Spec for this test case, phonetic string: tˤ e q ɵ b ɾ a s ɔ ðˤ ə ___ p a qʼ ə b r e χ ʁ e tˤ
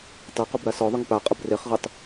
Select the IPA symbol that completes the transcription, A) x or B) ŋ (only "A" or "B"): B